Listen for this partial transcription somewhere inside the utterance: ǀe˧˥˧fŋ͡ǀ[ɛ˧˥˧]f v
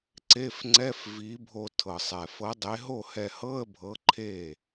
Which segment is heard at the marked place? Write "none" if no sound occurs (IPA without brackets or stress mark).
ɛ˧˥˧